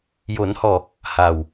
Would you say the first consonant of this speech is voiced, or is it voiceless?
voiced